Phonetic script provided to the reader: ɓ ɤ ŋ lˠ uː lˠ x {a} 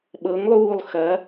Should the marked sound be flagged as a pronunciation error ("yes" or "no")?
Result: yes